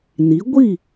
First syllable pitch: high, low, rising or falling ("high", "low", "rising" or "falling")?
rising